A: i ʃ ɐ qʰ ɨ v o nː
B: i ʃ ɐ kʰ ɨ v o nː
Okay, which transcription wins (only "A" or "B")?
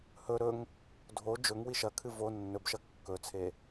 B